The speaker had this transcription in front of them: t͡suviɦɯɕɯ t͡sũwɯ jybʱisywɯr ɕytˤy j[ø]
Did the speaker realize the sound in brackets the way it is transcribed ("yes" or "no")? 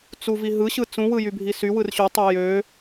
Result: yes